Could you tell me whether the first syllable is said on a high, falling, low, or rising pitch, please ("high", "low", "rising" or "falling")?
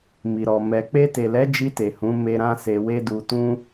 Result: low